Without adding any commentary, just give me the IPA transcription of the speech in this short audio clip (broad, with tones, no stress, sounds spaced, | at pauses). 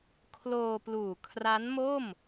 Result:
kʰ l oː˧ p l uː˨˩ kʰ r a˦˥ n m o˥˩ m